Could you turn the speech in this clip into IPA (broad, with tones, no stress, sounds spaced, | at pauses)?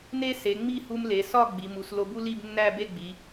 n e˥ s e˩˧ ŋ͡m i˥˧ h u˧ m l e˩˧ s ɒ˥˧ ɡ͡b i˩˧ m u˩˧ s l o˧ b u˥ l i˥˧ b nː æ˥˧ b e˥˧ ɡ͡b i˩˧